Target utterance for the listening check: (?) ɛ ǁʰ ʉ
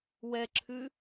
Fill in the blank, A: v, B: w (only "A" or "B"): B